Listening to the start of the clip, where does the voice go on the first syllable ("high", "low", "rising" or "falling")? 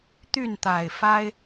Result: falling